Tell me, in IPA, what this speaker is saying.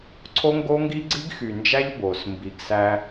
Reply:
ǀʰo˦ŋɡo˦ŋɡi˦ ɡ͡ǀi˦ɡxy˨nd͡ʒæ˦ʎ bo˨s mbi˨ɡsæ˦

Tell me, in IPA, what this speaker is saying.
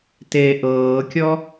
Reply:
te ʔɤːkʲɔ

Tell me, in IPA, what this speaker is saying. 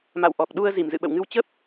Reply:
ma̰˧˨wʔɔ˨˩k̚ ɗu˧ə̯ zi˧˩mzɨ̰˧˨ɓə̰˧˨wŋɨ˧w t͡ɕə˦˥p̚

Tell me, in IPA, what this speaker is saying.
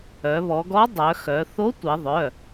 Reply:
œ˩˧βɔ˩˧ɡɔ˧˥ dˤœ˩˧xœ˩˧ θo˧˥ tʷi˩˧ðˤœ˩˧˩

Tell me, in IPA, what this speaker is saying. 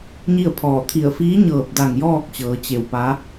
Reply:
ɲi˥˨ə̯pʰɔː˧˩ t̪ʰi˧˩ə̯fiː˧˥ɲɤː˧˩p̚da˧˩ŋ jɔː˥˨k̚t͡ɕɤː˩˧ t͡ɕe˧˩wpa˧˥

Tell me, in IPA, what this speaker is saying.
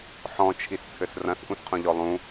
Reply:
ħɔ̃t͡ʃʰist͡sʰɘs rɐ̃sʔũsqʰũʎɔ lˠũ

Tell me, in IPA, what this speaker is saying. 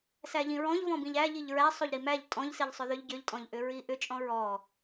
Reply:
sæʎĩɹɔ̃ʎvɔ̃ bĩʎæ ʎiʎɹæ sˤoʎɾimæʎ tʼɔ̃ʎsiʎ sˤʏðʏʎ ɟʏʎtʼɔ̃ʎʔʏ ɹiʔʏ t͡ʃʼɔ̃ɹɔ

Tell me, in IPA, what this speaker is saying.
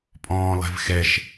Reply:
pʼɔ̃ːlˠɛ̤vxɛʃ

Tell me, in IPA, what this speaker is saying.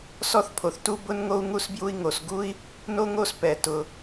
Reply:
sɔ˥θpʰo˩θtu˥ bʊ˥nŋo˥u̯ ŋu˥sbju˥i̯ ŋo˩s ɡu˥i̯ | no˥ŋo˥spɛ˩ tʊ˩

